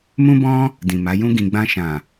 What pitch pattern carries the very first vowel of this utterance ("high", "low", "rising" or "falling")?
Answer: high